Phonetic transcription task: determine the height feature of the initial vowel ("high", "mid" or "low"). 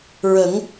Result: mid